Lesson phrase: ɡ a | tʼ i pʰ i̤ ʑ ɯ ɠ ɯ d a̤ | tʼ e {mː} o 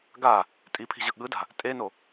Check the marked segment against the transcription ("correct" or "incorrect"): incorrect